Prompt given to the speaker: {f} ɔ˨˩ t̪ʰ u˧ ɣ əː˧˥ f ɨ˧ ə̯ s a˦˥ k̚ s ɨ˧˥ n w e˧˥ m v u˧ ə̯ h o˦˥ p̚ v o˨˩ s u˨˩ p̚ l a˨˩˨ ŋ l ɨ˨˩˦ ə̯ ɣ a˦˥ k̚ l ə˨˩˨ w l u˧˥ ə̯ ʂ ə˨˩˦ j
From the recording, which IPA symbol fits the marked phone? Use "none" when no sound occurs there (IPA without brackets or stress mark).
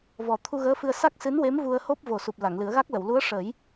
v